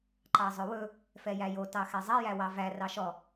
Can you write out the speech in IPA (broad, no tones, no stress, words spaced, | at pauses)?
ǃɑzˤɵwɵ | fɛjæjo tɑxɛzˤɛ jæwɑvæ rɑʃɔ